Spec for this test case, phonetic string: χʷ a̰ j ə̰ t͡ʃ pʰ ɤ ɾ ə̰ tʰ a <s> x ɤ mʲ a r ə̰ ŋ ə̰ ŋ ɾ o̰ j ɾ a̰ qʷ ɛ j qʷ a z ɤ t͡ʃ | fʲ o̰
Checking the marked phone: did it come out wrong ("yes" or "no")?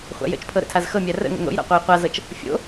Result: yes